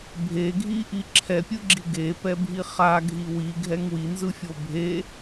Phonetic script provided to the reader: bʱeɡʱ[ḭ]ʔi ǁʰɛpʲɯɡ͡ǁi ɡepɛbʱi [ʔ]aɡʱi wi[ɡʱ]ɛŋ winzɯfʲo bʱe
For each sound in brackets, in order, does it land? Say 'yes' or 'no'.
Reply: no, no, yes

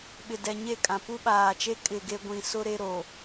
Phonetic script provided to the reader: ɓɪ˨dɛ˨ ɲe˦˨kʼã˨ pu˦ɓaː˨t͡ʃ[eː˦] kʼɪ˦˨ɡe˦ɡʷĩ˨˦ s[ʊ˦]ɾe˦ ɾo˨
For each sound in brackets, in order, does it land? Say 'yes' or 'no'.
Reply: no, yes

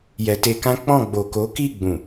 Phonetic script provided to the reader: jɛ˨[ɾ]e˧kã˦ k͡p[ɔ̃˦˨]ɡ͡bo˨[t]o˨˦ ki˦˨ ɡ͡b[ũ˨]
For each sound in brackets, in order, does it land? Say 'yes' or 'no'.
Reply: no, yes, no, yes

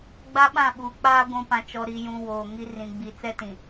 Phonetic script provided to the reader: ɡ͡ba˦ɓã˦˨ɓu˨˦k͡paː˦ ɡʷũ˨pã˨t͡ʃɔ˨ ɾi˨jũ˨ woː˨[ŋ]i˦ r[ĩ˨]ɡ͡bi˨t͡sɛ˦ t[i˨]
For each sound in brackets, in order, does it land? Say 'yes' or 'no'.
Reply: yes, yes, no

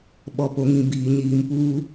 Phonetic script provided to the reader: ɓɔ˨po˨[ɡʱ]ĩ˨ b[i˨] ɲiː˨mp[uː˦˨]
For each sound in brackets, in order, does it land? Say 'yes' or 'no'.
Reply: no, no, no

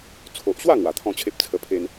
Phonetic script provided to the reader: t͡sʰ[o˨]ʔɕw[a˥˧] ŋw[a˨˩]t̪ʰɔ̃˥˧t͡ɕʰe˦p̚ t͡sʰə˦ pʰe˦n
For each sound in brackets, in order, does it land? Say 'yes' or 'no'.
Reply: yes, yes, yes

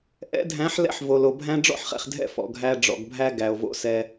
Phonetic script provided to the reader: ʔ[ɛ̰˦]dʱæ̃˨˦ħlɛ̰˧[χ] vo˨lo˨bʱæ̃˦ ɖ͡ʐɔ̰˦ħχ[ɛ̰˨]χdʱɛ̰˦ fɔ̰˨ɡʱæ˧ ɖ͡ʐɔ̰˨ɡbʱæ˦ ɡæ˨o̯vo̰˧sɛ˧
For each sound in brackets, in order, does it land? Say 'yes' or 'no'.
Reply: no, no, yes

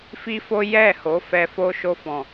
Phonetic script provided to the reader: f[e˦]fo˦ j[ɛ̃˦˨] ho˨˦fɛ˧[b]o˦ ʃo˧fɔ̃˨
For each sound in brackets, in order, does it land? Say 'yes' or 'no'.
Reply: no, no, no

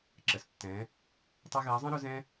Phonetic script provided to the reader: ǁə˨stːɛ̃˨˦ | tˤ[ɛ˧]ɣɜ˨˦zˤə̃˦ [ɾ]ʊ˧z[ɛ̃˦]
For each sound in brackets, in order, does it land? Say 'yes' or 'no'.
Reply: yes, yes, yes

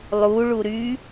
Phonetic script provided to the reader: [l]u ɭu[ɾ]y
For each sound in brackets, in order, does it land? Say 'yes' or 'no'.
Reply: no, yes

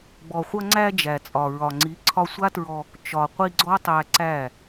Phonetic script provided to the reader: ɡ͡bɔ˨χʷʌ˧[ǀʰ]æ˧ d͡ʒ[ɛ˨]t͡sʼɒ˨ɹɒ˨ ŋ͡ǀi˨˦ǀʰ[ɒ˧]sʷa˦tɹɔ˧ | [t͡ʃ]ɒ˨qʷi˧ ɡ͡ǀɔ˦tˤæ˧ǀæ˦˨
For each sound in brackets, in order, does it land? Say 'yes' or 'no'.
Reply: no, no, yes, yes

